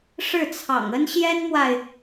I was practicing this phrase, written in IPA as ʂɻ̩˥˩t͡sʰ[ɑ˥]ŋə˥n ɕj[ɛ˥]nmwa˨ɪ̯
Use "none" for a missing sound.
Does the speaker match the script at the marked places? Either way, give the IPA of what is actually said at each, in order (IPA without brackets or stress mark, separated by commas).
ɑ̰˨˩, ɛ˥